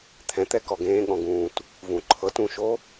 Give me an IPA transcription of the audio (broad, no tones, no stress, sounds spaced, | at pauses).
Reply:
t̪ʰ ɛ̃ t̪ ɛ k ɔ ɡ ẽː ɠ ɔ̃ ɡ ũː t | v ũ ǃʰ ɤ t ũ ʃ o